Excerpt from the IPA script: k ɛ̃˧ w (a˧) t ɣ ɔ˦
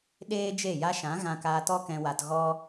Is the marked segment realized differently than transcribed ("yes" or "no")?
no